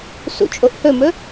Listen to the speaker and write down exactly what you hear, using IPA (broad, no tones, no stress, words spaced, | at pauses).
sṵt͡ʃʼoʔhɵmɵ